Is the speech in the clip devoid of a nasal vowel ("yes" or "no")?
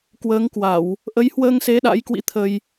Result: yes